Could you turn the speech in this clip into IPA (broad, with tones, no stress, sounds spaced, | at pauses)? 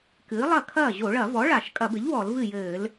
k ɨː˩˥ lˠ ɐ˥˩ kʰ ɐː˥˩ ʑ o˧˩˧ ɭ ɐ˧˩˧ v ɔ˩˥ ɭ a˧˩˧ ʃ kʼ ɐ˧˩˧ b ɘ˩˥ ʎ w ɔ˧˩˧ l v ɨ˥˩ j ɘː˧˩˧ l